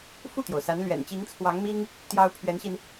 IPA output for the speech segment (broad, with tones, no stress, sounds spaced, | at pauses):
f u˥˩ t̪ j o˩ ʊ̯ s a˧˥ n l ɥ ɛ̰˨˩ n t͡ɕ i˧˥ ŋ t͡sʰ w ɑ˧˥ ŋ m i˥ ŋ | t̪ j ɑ˥ ʊ̯ pʰ ɥ ɛ˧˥ n ɕ i˧ n